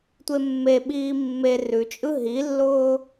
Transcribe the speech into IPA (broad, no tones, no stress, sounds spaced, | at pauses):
tʷ e mː e ɓ iː mː e r ʉ t͡ʃʼ ɯ ɦ i lː ʊː